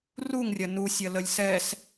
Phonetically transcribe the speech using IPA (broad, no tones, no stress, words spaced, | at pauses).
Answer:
ruŋrʲɐ nusʲɐ ləlʲsɛs